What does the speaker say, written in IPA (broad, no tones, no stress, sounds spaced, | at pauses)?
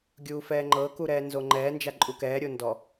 ɡʲ uː f ɛː ŋ͡ǃ ɤ k u ɾ ɛː n z o ŋ͡ǃ ɛː n d͡ʒ a ǃʼ u k ɛː ɾʲ o n d ɔ